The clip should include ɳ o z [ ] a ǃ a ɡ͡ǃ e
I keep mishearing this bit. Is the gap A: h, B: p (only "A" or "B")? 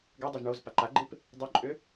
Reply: B